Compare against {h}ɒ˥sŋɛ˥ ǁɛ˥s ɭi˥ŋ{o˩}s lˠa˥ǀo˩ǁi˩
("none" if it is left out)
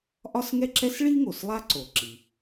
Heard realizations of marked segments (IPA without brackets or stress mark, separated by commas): ʔ, o˩